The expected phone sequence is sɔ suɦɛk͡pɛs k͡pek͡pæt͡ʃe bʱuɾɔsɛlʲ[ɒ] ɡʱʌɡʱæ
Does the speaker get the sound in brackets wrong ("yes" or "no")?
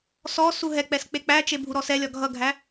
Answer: no